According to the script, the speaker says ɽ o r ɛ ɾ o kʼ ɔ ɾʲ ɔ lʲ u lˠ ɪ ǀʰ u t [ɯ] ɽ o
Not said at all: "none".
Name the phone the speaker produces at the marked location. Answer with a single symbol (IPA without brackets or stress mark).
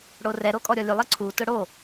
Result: ʊ